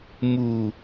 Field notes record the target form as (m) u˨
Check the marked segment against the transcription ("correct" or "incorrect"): correct